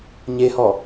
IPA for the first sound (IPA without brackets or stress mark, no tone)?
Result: ɲ